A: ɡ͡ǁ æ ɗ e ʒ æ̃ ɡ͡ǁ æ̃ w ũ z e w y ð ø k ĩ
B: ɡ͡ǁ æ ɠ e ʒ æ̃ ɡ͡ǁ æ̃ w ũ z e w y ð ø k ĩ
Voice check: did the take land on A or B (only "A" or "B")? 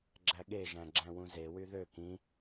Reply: B